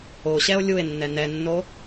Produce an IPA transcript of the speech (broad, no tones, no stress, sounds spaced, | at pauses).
o ɕ ɛ o̯ lʲ u e̯ nː ɛ n ɛ nː o